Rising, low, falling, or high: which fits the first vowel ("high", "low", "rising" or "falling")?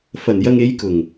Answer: low